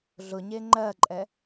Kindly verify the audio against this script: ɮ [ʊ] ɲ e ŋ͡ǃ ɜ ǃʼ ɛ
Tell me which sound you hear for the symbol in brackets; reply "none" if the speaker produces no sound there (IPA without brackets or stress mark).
ʊ